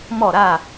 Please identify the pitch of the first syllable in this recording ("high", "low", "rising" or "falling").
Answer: falling